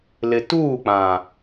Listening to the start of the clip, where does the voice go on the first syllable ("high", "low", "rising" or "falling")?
low